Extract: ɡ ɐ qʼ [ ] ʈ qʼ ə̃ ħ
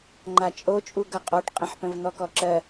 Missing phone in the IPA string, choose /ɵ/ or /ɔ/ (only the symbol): ɔ